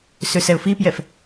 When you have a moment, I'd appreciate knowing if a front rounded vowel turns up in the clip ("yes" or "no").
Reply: yes